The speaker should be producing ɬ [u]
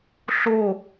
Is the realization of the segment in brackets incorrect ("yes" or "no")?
yes